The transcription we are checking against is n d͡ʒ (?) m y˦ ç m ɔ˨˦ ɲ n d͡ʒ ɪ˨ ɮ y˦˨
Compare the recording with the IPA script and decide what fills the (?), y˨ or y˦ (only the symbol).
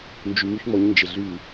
y˨